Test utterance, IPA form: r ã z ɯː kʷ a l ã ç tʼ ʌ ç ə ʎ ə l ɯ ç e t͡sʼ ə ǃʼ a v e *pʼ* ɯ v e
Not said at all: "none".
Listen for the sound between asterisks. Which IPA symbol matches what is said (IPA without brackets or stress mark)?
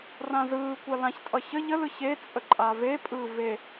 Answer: pʼ